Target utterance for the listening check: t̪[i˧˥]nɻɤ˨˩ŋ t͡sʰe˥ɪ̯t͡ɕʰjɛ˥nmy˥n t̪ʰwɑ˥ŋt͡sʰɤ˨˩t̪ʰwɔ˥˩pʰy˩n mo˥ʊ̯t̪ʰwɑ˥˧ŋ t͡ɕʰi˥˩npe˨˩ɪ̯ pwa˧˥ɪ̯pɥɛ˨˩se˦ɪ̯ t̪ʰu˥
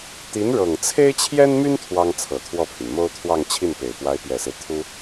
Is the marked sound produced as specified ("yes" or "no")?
yes